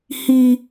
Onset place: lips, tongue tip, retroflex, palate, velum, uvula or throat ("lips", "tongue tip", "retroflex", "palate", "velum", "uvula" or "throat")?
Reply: throat